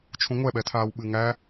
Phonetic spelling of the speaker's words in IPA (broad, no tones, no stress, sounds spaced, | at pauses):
t͡ʃʰ ũ ŋʷ ɛ ɓ ɛ tʰ aː w ɓ ɨ ŋ æ